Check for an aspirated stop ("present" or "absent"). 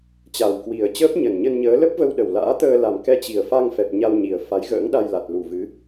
absent